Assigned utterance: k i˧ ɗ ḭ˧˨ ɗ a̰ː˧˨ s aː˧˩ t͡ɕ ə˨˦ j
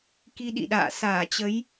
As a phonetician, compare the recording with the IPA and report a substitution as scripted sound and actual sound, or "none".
none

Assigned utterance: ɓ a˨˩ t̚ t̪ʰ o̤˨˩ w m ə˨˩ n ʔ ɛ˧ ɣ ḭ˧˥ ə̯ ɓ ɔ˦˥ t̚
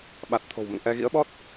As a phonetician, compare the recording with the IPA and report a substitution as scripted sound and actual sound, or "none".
ə˨˩ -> ə̰˧˨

